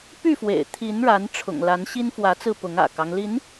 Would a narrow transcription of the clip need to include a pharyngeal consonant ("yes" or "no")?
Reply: no